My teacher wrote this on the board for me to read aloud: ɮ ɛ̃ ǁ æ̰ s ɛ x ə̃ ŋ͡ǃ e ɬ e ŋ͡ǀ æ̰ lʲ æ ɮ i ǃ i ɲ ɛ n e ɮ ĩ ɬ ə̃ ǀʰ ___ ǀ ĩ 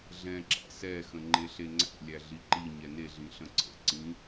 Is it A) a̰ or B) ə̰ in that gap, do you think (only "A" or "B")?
B